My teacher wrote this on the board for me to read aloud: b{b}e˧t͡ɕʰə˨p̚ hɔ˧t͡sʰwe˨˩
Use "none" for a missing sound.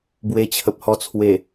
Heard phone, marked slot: w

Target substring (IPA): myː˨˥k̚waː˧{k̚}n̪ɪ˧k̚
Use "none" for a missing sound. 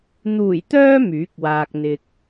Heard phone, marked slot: k̚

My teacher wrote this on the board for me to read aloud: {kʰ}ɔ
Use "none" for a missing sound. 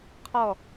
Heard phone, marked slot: qʰ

